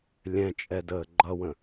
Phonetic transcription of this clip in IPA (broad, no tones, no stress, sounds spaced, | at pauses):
lʲ ɛ̃ t͡ʃʼ ɛ d əː ɡ͡ǃ ʌ w ə̃